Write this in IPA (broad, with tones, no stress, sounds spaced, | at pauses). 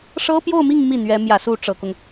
ʂ ɤ˥ p j o˥˧ ʊ̯ m i˥˧ ŋ m i˥˩ n̪ ɥ ɛ˧˥ m j ä˨˩ s u˥˩ ʈ͡ʂ ɤ˨˩ k ʊ˦ ŋ